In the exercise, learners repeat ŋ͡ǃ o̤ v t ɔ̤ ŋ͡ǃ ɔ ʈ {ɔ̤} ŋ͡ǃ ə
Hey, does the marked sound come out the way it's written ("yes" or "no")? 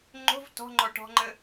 yes